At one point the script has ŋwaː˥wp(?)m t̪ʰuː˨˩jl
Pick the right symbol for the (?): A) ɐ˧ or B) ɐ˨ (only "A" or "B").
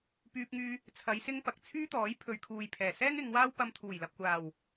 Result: A